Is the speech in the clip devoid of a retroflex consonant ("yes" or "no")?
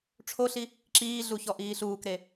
no